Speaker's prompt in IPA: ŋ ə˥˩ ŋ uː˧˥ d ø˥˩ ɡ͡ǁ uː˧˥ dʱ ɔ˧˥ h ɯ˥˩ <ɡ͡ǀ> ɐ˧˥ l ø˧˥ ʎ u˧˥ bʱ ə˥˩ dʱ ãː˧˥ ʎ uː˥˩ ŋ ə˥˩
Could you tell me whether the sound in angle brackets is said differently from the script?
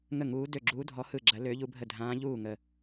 yes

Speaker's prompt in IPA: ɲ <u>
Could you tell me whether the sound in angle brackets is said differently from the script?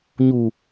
no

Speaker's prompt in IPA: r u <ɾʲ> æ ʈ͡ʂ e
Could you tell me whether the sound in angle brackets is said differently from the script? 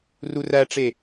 yes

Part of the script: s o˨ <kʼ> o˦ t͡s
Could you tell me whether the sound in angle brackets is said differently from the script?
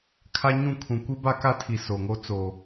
yes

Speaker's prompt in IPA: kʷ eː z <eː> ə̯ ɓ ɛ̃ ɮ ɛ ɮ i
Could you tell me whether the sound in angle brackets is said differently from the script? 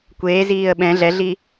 yes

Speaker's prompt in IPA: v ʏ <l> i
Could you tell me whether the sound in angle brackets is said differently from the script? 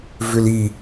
no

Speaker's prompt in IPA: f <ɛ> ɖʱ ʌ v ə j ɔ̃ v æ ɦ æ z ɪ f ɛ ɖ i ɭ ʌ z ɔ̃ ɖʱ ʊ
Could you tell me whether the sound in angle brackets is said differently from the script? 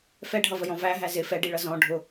no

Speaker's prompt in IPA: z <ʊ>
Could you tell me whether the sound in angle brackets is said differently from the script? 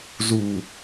yes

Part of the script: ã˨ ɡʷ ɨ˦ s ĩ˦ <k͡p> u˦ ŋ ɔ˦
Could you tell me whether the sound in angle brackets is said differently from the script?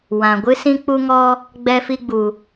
no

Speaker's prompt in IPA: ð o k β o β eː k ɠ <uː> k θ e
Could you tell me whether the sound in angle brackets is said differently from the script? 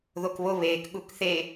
yes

